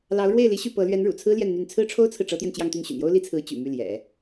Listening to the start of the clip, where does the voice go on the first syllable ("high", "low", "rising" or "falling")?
rising